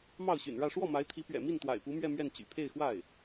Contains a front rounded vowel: yes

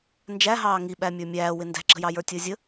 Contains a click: yes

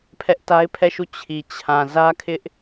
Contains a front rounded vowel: no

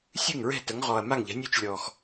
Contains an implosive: no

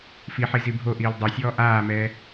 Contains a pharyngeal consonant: yes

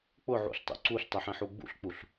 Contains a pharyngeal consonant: yes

